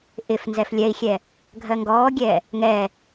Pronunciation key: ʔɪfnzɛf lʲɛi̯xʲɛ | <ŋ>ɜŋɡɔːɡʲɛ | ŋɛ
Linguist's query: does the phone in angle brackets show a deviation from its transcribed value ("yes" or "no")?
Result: yes